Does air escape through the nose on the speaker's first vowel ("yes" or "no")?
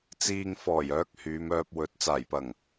no